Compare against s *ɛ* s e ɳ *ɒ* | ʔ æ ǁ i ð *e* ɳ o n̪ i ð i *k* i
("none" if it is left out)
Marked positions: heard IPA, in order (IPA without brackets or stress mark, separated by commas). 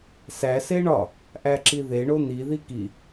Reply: æ, ɒ, e, k